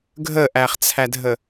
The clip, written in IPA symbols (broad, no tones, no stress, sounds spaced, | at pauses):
ɡʱ ə ʔ æ χ t͡sʰ æ dʱ ə